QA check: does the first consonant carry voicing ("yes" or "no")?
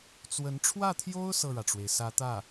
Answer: no